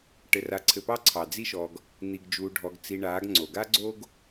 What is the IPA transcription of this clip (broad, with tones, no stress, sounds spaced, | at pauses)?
ʈ ɘ˧ r a˧ ǀʰ ɘ˧ p ɑ˦ ǀʰ ɑ˨ d͡z i˦ ʃ ɔ˧ ɡ | n̪ i˧ ɡ d͡ʒ uː˧ ɖʱ ɔ˧ ɡ t͡s i˧ ɳ aː˨˦ ɡ ŋ͡ǀ o˨ ɡ a˦ ɡ͡ǀ o˦ ɡ